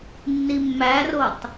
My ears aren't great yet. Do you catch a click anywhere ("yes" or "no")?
no